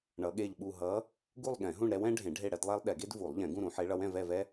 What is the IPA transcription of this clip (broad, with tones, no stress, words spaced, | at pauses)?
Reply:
ɳʌ˧˥ɠe˥˧ʎɓu˥˧ ɦʌ˧˥ | ɡu˥˧lˠɠɛ̃˨˩˦ɦũ˥˧ɳ ɾɛ˧˥wɛ̃˧˥ɖʱẽ˨˩˦ ɖʱe˥˧ɽɛ˧˥dlˠɛ˥lˠ ɗɛ˨˩˦ɡe˥d vu˨˩˦lˠ ʎɛ̃˨˩˦ɡũ˥˧ɾũ˨˩˦ ħe˧˥ɭʌ˧˥wɛ̃˥˧ vɛ˥˧vɛ˥